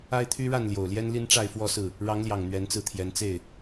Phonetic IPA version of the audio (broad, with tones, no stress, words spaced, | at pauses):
a˦ɪ̯t̪ʰy˦ɻa˥˨n ljo˨˩ʊ̯ljɛ˦n li˦nʈ͡ʂa˥˨ɪ̯fwɔ˥˨sɹ̩˥˨ | ɻɑ˨˦ŋljɑ˨˩ŋ n̪ɥɛ˨˦nt͡sɹ̩˧t̪ʰjɛ˨˦nt͡se˥˨ɪ̯